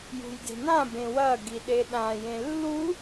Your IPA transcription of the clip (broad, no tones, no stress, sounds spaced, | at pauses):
j ṳ j d e̤ n ã b ẽ w ɐ ɡ i ɗ e ɗ ã j ẽ lː u